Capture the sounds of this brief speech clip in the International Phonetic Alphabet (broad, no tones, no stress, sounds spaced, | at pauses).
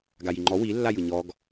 ɡ a j i ŋ͡ǃ ɔ w i lː a j ɯ ɲ ɔ ɡ